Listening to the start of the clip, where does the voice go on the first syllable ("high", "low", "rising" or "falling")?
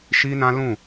high